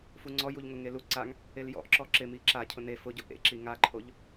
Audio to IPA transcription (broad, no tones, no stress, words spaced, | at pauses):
fuŋ͡ǀɔ juʎŋʊŋelu ǀaŋ | eljɔ̰ʔ ǁɔǁɪmi ǁacʰʊ ne fʊɟʊ ʔḛǁi ŋaǃʰoʎ